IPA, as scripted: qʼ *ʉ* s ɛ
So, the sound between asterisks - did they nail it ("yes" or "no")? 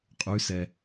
yes